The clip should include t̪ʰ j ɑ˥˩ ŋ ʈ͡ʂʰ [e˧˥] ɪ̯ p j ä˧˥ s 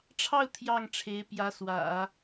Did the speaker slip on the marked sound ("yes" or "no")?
no